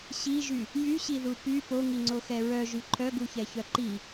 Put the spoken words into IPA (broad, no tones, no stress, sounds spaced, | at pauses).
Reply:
ɕ i ʒ y | j y ɕ i ð u p y p o ŋ i ŋ͡ǀ o x ɛ ɹ œ ʒ y ǃʰ œ ɡ u ç ɛ ç œ ǃ i